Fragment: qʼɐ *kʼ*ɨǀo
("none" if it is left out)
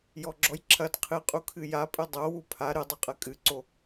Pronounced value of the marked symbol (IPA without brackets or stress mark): kʼ